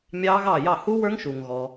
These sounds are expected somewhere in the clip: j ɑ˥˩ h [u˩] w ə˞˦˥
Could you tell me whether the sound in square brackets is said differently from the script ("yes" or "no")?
yes